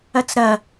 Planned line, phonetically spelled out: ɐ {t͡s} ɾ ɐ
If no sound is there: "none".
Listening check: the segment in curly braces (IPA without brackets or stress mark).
t͡s